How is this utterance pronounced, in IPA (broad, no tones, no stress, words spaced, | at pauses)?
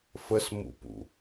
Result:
fəsmṵpṵ